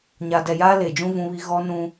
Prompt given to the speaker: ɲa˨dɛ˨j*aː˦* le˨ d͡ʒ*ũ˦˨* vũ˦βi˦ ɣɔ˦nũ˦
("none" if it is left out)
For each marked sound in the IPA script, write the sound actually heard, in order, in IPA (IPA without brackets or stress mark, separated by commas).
aː˦, ũ˦